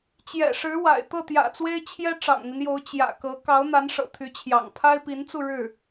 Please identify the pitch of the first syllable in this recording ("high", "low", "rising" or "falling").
low